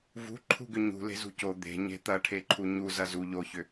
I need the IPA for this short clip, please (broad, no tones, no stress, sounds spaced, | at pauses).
v ṳ ǃʰ ṳ ɡ ʏ ɲ ṳ l e̤ z ṳ c o d̪ e̤ ɲ e̤ t̪ ɐ ʈʰ e ǃʰ u ɲ u z ɐ z u ʎ o ç ʏ